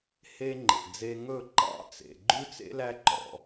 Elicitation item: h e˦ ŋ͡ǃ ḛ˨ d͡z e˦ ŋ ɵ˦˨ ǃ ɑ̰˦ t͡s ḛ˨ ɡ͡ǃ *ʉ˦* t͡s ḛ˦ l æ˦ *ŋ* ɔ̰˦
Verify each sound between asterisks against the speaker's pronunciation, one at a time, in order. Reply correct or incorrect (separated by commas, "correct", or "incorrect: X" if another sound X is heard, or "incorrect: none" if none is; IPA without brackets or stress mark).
correct, incorrect: ǃ